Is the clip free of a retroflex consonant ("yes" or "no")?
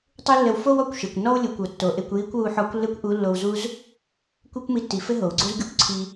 yes